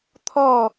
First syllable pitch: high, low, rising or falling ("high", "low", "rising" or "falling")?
falling